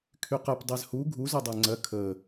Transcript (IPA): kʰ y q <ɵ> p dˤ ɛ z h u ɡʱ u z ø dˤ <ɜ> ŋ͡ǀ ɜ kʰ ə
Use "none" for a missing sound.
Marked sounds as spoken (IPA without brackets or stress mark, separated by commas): ə, æ